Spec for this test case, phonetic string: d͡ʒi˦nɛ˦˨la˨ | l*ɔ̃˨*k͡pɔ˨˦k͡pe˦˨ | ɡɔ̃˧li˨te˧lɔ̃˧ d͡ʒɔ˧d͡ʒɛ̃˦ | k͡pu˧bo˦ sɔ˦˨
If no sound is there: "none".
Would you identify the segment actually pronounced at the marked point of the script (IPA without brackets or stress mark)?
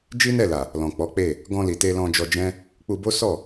ɔ̃˨